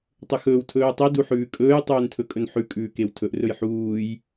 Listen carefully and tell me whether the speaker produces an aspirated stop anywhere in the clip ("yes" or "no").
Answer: yes